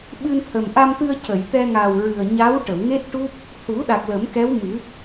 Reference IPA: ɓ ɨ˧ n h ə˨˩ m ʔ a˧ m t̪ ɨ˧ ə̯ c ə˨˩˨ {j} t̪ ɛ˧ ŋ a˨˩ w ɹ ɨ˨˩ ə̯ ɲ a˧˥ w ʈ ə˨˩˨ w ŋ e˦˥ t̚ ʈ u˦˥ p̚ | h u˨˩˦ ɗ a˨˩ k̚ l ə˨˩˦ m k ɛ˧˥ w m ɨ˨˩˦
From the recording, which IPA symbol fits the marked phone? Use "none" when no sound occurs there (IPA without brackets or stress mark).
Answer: j